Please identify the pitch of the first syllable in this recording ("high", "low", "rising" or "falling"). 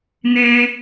high